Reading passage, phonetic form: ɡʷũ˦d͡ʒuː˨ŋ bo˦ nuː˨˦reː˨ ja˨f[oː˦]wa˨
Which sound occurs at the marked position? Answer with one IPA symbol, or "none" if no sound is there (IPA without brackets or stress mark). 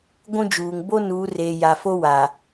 o˦